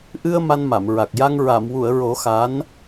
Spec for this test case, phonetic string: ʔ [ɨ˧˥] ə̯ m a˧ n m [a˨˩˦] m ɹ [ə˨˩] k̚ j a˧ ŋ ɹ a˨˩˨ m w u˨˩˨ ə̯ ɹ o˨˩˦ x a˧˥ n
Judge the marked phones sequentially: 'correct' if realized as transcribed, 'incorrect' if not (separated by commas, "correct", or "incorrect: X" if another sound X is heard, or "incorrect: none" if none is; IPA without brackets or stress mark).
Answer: incorrect: ɨ˧, incorrect: a˨˩˨, incorrect: a˨˩